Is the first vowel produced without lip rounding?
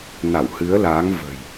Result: yes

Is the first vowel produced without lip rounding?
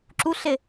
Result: no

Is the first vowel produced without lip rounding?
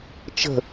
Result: yes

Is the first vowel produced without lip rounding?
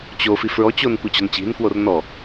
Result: no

